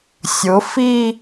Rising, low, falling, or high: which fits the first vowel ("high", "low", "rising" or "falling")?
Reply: rising